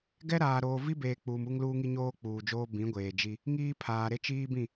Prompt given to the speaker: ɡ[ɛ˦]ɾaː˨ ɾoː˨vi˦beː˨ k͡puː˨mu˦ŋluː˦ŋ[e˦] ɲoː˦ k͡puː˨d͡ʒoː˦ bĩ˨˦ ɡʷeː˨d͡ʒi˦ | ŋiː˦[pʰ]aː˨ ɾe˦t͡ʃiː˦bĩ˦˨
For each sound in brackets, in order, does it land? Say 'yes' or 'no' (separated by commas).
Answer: yes, no, yes